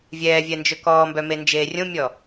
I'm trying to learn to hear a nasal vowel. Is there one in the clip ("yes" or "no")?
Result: yes